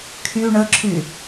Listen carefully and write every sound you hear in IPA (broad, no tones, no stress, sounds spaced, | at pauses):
kʰ y ɳ ə ǁʰ y